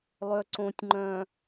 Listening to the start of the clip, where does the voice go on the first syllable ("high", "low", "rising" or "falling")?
low